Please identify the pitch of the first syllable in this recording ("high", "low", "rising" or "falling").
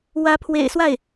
rising